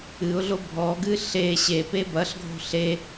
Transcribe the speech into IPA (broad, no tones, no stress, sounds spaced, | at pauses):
ɨ ʊ̯ ɮ o bʱ ɔ ɡ ɨ ɬ e ɕ e p e b ɐ ɬ ɡʱ o̤ ɬ e